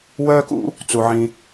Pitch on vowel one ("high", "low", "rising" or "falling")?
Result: high